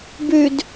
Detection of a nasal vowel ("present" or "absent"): absent